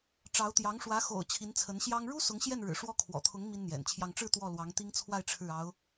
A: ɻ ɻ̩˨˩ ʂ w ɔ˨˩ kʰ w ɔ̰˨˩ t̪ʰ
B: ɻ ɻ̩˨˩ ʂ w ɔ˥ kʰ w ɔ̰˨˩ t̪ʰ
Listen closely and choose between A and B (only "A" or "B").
B